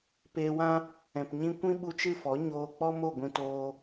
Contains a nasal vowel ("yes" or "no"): yes